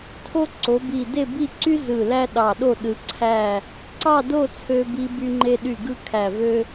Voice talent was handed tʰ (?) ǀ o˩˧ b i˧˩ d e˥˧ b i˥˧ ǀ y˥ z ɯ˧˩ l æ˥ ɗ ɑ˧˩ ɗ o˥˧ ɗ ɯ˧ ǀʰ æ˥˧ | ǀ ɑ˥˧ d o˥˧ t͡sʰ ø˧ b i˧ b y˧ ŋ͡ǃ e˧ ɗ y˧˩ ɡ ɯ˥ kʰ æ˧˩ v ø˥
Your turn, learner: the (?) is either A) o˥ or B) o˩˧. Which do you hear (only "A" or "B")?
A